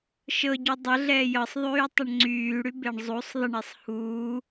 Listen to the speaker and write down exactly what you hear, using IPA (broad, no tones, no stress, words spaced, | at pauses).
ʃɤɟy dˤəɮɛː jɤsˤðˤyːtˤʌɳ ŋ͡ǀyːɽybeɳ zˤusˤ ðˤəɳesˤ huː